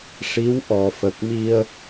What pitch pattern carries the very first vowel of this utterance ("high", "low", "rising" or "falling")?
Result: rising